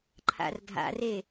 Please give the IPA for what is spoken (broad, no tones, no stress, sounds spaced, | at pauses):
ǃʰ a̰ r dʱ a̰ r e